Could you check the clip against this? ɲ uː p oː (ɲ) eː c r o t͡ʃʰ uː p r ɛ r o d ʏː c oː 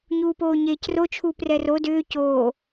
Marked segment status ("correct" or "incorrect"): correct